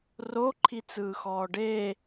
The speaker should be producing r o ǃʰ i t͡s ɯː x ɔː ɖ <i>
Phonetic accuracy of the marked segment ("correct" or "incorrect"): incorrect